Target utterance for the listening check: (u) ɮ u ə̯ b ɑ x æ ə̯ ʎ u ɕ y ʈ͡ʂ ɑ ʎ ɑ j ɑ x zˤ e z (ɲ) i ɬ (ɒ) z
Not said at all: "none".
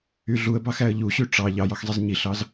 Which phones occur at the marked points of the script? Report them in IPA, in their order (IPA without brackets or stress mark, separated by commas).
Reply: y, ɲ, ɑ